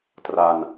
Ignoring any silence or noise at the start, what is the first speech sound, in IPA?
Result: t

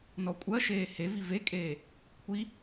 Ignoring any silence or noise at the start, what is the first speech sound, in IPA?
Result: n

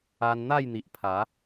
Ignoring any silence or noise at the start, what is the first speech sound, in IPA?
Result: a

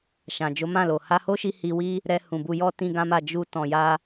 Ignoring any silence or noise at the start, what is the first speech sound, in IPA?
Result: ʃ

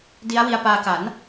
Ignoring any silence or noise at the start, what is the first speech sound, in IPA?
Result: d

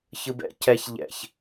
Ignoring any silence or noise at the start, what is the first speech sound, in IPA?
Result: ç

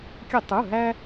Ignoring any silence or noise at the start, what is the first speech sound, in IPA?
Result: kʲ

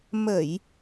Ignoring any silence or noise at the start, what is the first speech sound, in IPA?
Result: m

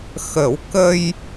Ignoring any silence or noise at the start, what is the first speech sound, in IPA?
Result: x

